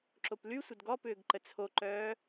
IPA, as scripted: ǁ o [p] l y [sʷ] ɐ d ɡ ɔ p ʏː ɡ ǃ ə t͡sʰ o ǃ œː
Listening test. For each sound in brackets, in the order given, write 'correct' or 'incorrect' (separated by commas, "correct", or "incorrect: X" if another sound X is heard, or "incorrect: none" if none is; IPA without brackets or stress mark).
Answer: correct, correct